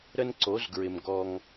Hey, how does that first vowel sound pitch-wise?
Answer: high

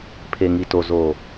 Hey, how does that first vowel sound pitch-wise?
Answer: low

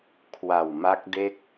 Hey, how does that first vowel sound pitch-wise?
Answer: low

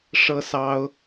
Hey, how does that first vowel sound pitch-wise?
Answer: high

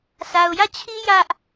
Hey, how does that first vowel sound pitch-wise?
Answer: low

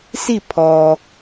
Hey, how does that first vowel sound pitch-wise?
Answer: falling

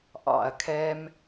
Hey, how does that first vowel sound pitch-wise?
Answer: low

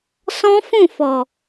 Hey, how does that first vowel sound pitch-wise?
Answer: high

